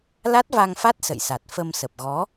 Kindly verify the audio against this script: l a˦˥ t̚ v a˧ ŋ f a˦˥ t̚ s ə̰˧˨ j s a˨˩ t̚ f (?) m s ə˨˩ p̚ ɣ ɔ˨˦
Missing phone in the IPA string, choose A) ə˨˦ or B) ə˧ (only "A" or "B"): B